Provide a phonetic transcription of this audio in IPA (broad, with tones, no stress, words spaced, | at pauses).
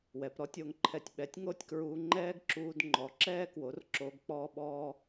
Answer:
wɛ˨pɾɔ˦tʲo˧ŋǃʰɛ˧tʲ ɓɛ˨˦tʲŋo˦tʲkɹuː˧ ŋ͡ǃɛː˦ɡǁuː˧dŋ͡ǃɔ˨ǁɛː˦ kwo˨˦r ǁoː˧ɡk͡pɔː˦ɓɔː˦